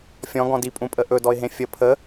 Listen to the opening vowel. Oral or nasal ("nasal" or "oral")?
nasal